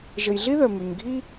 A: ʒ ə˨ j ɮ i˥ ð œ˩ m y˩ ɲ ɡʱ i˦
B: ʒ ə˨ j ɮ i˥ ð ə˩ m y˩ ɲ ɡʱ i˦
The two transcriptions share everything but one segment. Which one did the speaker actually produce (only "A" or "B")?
A